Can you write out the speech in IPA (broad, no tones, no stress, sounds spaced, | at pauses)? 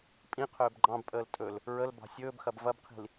pʼ ĩ qʰ ɵː b ɡ͡ǃ ɑ̃ b pʼ əː l tʼ ɵ l | ɹ ə l b ɑ̤ sʲ ɵː b x ɐ b v ɐ b qʰ i̤ l